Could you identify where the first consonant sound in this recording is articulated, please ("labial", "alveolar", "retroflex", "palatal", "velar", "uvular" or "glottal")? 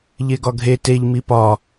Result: palatal